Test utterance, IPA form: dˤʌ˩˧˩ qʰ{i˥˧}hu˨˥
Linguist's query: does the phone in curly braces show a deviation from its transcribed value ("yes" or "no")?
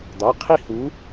no